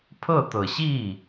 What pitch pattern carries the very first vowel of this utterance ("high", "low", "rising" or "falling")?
falling